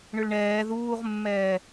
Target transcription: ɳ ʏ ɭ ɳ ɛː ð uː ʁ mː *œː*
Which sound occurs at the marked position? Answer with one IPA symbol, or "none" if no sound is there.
ɛː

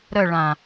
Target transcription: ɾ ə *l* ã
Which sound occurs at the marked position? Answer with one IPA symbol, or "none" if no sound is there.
ɭ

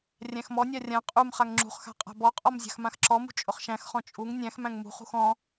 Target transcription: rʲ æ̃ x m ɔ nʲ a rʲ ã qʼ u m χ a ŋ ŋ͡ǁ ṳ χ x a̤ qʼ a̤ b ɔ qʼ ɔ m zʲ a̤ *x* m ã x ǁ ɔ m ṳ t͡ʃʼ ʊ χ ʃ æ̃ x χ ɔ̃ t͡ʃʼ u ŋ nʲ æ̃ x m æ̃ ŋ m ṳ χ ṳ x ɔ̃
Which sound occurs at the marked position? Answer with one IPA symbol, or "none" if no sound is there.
x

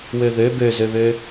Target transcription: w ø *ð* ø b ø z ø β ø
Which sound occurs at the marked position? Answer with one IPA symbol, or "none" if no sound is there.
ð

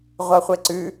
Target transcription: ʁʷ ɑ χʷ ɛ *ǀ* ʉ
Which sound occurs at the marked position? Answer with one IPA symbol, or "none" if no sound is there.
ǀ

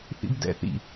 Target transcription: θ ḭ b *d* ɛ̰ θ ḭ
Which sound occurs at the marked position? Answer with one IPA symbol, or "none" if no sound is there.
d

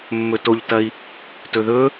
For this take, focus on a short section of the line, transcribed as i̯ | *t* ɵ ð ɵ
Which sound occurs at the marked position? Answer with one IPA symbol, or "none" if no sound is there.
t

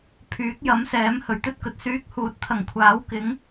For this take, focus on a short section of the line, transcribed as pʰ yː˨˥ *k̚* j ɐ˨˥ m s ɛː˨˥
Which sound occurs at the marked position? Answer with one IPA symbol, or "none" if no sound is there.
k̚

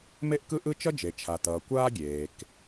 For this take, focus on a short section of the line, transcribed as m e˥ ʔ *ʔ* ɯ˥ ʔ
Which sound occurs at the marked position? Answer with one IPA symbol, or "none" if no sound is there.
k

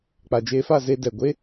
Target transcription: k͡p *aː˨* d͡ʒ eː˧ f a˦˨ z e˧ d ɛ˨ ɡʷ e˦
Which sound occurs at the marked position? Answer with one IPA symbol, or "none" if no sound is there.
a˨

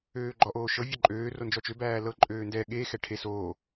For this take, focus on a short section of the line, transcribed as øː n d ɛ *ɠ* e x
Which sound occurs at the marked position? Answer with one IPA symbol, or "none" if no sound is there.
ɠ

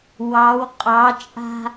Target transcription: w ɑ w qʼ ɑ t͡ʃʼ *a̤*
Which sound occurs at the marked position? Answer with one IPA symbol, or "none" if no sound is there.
a̤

